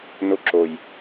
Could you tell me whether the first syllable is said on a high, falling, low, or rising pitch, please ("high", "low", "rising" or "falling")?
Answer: rising